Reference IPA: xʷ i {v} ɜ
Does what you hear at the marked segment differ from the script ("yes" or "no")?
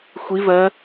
no